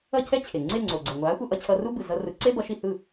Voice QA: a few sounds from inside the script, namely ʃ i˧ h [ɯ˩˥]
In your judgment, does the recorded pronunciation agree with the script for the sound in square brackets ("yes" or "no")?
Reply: no